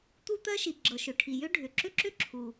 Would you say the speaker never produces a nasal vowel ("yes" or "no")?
yes